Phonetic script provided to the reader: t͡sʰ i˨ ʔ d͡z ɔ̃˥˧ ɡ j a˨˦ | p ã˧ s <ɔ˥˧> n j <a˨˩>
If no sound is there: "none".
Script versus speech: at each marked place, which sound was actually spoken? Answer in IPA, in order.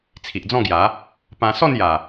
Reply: ɔ˥˧, a˨˩

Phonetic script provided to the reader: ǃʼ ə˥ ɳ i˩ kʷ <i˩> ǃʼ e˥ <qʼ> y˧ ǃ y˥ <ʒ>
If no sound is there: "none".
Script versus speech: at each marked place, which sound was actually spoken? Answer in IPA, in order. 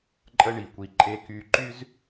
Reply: i˧, k, z

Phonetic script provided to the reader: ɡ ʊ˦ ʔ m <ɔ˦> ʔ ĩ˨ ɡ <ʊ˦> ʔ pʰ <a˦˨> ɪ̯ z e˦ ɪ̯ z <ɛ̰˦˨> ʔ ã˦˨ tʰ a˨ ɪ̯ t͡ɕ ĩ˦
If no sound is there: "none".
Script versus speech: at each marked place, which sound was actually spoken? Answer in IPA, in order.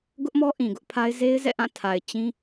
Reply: ɔ˦, ʊ˦, a˦, ɛ̰˦˨

